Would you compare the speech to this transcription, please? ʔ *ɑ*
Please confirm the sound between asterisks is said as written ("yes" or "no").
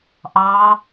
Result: yes